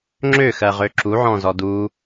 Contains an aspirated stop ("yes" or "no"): no